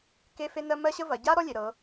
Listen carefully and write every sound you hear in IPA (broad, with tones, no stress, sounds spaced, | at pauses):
k e˥ f e˥ n ɜ˥ m ɜ˥ ɕ ə˥ v ɐ˩˧ ɟ a˥ ɾ ɔ˥ lʲ e˩˧ ɾ ɤ˩˧